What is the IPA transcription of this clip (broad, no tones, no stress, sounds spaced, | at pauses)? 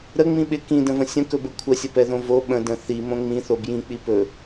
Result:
ɾ ə ŋ͡m ĩ ɓ ɪ k ĩ d ə̃ v ə̃ sʲ ə̃ k ɵ b ə kʷʰ ə sʲ ə p ɛ ð õ v o ɓ ə̃ d ə̃ θ i m õ ŋ͡m ĩ θ o b j ĩ k͡p i p ɵ